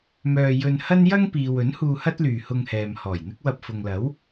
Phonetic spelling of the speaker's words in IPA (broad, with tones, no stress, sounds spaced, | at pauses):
m œː˧ j ɵ˧ n h ɐ˥ n j ɐ˥ ŋ p iː˨ w ɵ˨˥ n h uː˧ h ɐ˥ t̚ l yː˨ h ʊ˧ ŋ h ɛː˨ m h ɔː˨˩ j n̪ ɪ˥ k̚ w ɐ˧ p̚ f ʊ˨ ŋ l ɐ˨˥ w